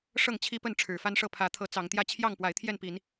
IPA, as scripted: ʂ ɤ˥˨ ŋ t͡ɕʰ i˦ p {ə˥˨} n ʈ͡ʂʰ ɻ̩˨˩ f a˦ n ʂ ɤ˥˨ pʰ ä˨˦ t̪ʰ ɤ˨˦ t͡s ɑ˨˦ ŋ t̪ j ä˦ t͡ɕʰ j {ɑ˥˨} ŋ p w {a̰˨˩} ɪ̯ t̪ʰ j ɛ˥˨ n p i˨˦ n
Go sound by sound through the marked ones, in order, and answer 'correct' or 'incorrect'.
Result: correct, correct, incorrect

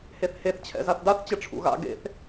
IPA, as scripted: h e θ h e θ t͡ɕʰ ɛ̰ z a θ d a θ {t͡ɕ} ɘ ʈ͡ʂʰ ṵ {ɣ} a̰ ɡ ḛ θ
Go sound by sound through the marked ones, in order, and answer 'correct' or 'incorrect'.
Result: correct, correct

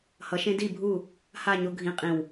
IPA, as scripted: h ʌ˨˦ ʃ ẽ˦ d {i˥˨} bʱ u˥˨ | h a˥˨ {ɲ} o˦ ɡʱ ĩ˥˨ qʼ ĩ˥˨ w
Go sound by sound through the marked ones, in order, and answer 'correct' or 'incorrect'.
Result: correct, correct

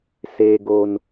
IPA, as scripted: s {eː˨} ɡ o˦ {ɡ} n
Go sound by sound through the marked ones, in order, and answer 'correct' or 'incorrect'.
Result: incorrect, incorrect

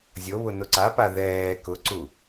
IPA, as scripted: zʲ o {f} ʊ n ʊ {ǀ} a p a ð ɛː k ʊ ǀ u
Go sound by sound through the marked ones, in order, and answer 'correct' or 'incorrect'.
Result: incorrect, correct

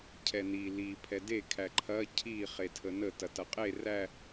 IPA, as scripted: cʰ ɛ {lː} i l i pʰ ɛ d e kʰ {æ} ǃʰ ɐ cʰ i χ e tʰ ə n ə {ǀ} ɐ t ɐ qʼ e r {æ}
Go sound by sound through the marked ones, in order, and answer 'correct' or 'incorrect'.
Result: incorrect, correct, incorrect, correct

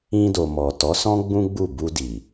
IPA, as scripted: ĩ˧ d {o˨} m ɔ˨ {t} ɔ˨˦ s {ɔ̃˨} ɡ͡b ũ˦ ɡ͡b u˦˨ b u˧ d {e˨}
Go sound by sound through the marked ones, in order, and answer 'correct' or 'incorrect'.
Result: correct, correct, incorrect, incorrect

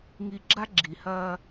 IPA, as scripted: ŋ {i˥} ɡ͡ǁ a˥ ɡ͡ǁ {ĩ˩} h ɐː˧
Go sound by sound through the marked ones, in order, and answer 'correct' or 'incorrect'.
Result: incorrect, incorrect

